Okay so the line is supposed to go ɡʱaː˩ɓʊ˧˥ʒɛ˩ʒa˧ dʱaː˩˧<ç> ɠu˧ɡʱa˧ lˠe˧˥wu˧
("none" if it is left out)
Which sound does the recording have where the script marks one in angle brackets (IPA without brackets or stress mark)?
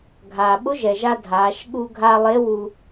ʃ